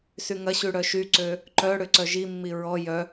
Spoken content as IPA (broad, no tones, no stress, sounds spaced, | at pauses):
s y ŋ ɐ ɕ y ɽ œ ʃ y ǀ ø | ǃ œ ɽ ʏ ǀ œ ʒ i mː i ɹ ɔ j œ